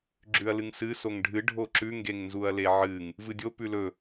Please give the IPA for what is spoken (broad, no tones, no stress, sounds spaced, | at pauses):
ɡ͡ǁ ʉ ɐ̯ l ɨ ŋ s ɨ s o ŋ ɖʱ ɨ ɖʱ o ǁ ʉ ŋ ɡ e ŋ n z u ɐ̯ l e ʕ ɨ ŋ | v ɨ dʲ o p ʉ l ɵ